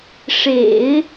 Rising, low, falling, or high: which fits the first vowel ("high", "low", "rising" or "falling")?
low